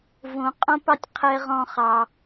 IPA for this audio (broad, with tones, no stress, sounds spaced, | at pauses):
v õ˨ qʼ õ˦ p ɑ˦ tʲ qʰ ɛ˧ ʁ ɔ̃˧ χ ɑ˨